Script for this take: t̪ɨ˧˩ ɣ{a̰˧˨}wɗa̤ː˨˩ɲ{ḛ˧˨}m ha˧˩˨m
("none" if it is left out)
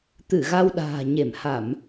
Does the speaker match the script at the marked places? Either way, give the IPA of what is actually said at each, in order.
a˧, e˧˩

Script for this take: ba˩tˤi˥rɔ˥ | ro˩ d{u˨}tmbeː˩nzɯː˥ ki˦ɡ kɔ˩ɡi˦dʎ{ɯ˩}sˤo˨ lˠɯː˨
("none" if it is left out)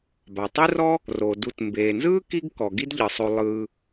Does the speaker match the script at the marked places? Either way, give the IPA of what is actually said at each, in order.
u˨, ɯ˩

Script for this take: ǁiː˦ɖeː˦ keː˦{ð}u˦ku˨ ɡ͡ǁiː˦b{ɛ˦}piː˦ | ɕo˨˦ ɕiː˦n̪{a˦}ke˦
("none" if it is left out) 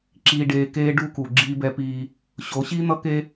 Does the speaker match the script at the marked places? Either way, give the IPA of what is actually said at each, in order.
ɖ, ɛ˦, ʌ˦

